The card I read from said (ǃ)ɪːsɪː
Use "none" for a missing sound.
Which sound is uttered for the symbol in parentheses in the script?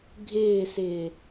ɡʱ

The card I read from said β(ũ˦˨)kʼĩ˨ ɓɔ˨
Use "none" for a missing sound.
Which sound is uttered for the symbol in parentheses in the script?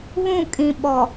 ũ˦˨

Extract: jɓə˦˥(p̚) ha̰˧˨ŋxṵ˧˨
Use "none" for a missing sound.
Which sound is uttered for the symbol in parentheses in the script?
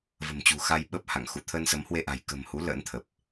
p̚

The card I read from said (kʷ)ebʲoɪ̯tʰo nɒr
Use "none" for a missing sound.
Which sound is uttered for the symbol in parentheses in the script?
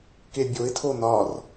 k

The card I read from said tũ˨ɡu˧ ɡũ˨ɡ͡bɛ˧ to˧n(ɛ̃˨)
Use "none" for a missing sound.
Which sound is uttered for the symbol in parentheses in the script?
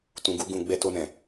ɛ̃˨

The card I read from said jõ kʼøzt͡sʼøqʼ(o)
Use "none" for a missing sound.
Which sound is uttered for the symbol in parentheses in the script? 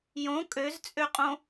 õ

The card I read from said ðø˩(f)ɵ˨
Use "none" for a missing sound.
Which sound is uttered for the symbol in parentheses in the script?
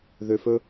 f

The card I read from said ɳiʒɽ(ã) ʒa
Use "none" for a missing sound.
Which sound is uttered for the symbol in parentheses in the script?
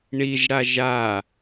a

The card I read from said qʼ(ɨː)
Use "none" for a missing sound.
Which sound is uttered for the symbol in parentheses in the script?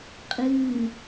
ɨː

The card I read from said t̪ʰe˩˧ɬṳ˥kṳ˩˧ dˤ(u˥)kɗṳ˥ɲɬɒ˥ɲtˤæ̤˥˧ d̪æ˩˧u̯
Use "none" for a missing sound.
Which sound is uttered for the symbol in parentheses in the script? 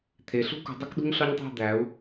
u˥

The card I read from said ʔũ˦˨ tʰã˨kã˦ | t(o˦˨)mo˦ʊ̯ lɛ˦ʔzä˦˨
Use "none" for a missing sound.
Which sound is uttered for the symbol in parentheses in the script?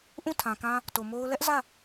o˨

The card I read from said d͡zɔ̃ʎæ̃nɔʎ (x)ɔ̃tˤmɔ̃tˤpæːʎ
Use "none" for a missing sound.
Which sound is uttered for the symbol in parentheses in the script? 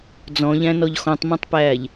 x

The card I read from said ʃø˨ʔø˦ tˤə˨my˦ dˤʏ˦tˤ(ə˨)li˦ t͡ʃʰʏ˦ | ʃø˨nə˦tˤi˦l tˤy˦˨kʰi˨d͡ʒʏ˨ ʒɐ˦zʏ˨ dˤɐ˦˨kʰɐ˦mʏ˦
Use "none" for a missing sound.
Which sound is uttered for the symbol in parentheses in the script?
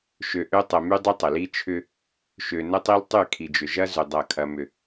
ə˨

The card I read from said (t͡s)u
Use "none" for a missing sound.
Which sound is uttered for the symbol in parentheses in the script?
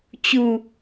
t͡ɕ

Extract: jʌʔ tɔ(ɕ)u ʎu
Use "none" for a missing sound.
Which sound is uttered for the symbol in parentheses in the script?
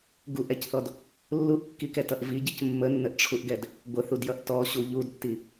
ɕ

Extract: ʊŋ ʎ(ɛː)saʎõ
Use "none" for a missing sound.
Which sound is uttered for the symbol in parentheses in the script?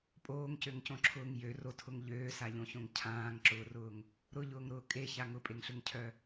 øː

